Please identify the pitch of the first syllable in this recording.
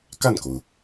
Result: falling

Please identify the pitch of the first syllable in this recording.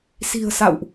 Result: low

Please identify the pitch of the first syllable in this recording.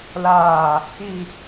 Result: low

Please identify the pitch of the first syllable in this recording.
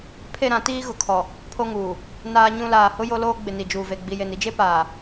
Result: falling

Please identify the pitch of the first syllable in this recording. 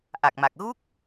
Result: low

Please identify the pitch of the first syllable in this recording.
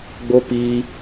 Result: high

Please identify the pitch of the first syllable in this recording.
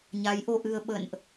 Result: rising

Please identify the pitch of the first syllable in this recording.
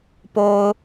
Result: low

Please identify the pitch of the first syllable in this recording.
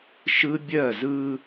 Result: high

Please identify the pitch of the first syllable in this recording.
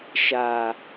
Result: low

